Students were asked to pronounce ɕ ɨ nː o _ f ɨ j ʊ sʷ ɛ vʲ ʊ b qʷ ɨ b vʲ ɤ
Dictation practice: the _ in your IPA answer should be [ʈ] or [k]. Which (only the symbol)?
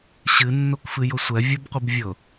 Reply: k